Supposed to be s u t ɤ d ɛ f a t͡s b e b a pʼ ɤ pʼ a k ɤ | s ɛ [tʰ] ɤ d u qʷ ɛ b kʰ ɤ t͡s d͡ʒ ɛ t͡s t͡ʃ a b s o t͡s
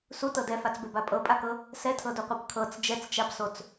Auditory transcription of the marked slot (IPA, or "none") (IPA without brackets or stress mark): tʰ